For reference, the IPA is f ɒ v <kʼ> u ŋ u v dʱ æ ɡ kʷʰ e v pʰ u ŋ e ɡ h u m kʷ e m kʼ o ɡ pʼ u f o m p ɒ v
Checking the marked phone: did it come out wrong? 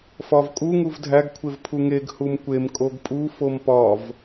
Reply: no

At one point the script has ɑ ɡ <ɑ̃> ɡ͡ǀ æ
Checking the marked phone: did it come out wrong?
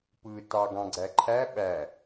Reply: no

